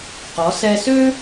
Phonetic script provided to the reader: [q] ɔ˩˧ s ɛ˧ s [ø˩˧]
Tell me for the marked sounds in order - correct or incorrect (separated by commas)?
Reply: correct, incorrect